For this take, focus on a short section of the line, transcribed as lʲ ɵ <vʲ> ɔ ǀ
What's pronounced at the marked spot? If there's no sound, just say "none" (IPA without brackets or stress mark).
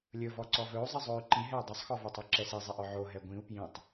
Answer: v